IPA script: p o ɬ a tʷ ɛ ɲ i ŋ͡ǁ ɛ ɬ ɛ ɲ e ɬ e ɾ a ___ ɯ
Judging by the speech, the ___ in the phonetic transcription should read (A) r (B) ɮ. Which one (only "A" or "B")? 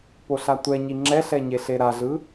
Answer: B